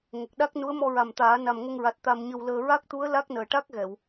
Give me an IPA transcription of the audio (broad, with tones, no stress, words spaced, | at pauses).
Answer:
ŋə˨˩k̚ɗa˦˥k̚ nu˧˥ə̯mɔ˧ɹa˨˩mt̪aː˨˩˦ na˨˩mŋə˧ŋɹa˨˩t̚ t̪a˧mɲə˧wləː˧ ɹa˦˥k̚t̪u˧˥ə̯ la˦˥k̚nəː˨˩ʈa˦˥k̚ɣɛ˨˩˨w